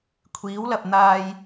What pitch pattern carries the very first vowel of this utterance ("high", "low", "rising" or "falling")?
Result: rising